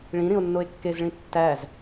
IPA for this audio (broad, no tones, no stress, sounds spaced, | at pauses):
ɭ ĩ ɾ ĩ o̯ nː o e̯ kː e z ɭ ĩ tː æ z